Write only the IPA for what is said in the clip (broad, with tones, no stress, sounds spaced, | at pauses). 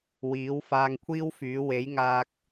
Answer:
w iː˨˥ w f aː˧ ŋ kʷʰ iː˥ w f yː˨˥ w e˨˥ j ŋ aː˧ k̚